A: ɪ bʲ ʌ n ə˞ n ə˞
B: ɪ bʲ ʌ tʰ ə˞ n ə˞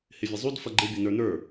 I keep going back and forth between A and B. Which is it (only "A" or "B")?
A